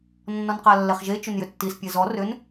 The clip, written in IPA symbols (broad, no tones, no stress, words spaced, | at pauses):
nːɔnqalːɛχʒe t͡ʃʏnjʏtːis pʲɛzɔ rʏn